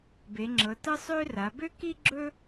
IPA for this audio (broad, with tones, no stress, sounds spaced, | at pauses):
b e˨˦ ŋ͡ǁ ɤ˨˦ t ɤ˥ sˤ ø˥ r a˨˦ b ø˥ k i˥ ɡ͡ǁ ɵ˥